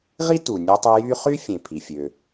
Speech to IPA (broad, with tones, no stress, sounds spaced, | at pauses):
ʁ i˥ t u˩ nʲ ɯ˧ tˤ y˧ j y˥ χ y˥ fʲ ẽ˩ pʰ i˩ fʲ ø˩